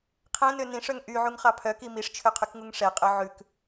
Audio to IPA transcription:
qʰ ɛ̃ n ø n ĩ ʂ œ ŋ ʔ y ʕ u ŋ χ ɑ pʰ œ k i m i ʂ t͡ʃʰ ø qʰ y k ŋ u ŋ ʂ ɛ qʼ œ ʕ ʉ k

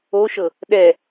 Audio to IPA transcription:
o ʃ ɤ | ɗ ɛ

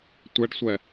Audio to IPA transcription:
tʷ ɛ ɖ sʷ ɛ

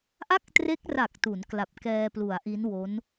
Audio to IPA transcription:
ʔ a˥˩ k̚ t r e˦˥ k̚ r a˨˩ k̚ t u˩˦ n k l a˨˩ p̚ k ɛː˧ p l u˩˦ a̯ ʔ i˦˥ n w o˦˥ n

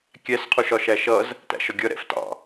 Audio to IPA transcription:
kʲ æ s qʰ u ʃ ɒ ʃ æ ʃ ʌ z | t æ̰ ʃ ɒ ɡʲ ʌ ɾ ɛ̰ f t ɑ̰

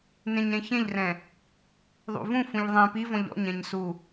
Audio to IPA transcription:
n ẽ ɲ ɾ ẽ ç ẽ ʎ r ɛ̃ | ðˤ ṵ v ũ f ũ ʎ ðˤ ẽ p i v ɔ̃ ʎ ɔ̰ ɲ ɛ̃ ɲ s u

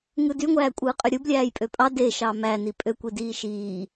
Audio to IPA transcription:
ŋ ɯ d y ŋʷ æː kʷʼ ɯː qʼ ø ɾʲ ɯ b lʲ æː j pʼ ø pʼ ɑ d e ʃ ɑ m æ n i pʼ ø kʷ i d iː ʃ iː

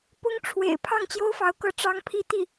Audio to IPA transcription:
p ʊ˥ ŋ ʈ͡ʂʰ w ḛ˨˩ ɪ̯ pʰ ɑ˥˩ ŋ t͡ɕ j o˥ ʊ̯ f ɑ˧˥ ʊ̯ k ɤ˥˩ ʈ͡ʂ ɑ˥ ŋ pʰ i˥˧ t̪ i˥˩

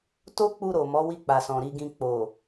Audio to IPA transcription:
t o˦ k͡p u˧ ɾ o˨ m ɔ˨˦ w i˧ k͡p a˨ s ɔ̃˨ ɾ i˨ ɡ ĩ˨ k͡p o˨

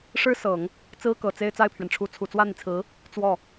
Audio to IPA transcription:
ʂ ɻ̩˥ s ɤ˨˩˦ ŋ | t͡s ɹ̩˥ k ɤ˨˩ t͡s e˥˧ ɪ̯ t͡s a˥˩ ɪ̯ pʰ ɥ ɛ˩ n ʈ͡ʂʰ u˧˥ t͡sʰ u˨˩ t͡s w ä˥˩ n̪ i˩ t͡sʰ ɹ̩˧˥ | t͡s w ɔ˥˩

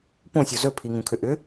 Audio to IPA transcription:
p õ sʲ o z ɵ pʰ i ŋ ũ kʰ ʏ ʔ ʏ

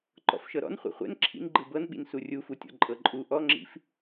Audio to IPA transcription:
ǃ ɔ̰ f ʃ ɤ ɾ ɔ̰ n χʷ ɛ̰ χʷ ɛ̰ n ǁʰ ḭ n ɡ͡ǃ ɯ b ɤ n ɓ ḭ n s u rʲ u f u tʲ ɔ̰ ǃʼ ɤ ǃʼ u ʔ ɔ ŋ͡ǁ ḭ f

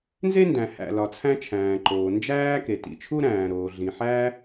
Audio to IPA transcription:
n z e˥ n d æ̃˩ h æ̰˩ l ɒ˩ t͡sʰ æ̃˥ t͡ʃʰ æ̃ː˩ ǃ oː˩ n d͡ʒ æː˥ k e˩ t ḭ˩ t͡ʃʰ u˥ ɾ æ̃ː˩ ɾ oː˩ ɮ ĩ˩ ħ æ˥

